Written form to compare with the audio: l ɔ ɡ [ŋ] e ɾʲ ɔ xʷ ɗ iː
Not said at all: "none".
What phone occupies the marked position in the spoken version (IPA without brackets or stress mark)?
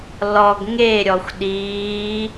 ŋ